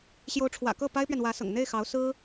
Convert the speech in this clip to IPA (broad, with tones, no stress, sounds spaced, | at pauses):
ɕ j o˧˥ ʊ̯ ʈ͡ʂʰ w ä̰˨˩ k ɤ˥˩ p a˥ ɪ̯ p ɥ ɛ˨ n w ä˧˥ s ɤ̰˨˩ ŋ n̪ e˥˩ ɪ̯ x ɑ˧˥ ʊ̯ s ɹ̩˥